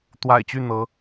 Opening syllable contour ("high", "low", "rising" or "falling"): low